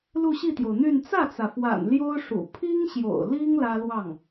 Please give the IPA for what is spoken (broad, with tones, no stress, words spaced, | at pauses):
lu˥˧ɕi˥˩t̪jo˩ʊ̯n̪y˥˧n t͡sä˥˩t͡sä˩fwa̰˨˩n ljo˥ʊ̯ʂṵ˨˩ pʰi˥ŋɕjo̰˨˩ʊ̯li˥ŋ lä˥lwɑ˥˩ŋ